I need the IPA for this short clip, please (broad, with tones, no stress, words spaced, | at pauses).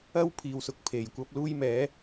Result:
ɐ˥wpʰiː˨wsʊ˨k̚ pʰe˨jkʷɐ˥p̚ luː˥jmɛː˨˥